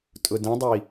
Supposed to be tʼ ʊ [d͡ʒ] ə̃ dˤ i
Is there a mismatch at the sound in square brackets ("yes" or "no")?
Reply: yes